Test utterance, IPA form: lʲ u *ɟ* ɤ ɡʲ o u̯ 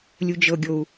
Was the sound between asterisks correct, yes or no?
no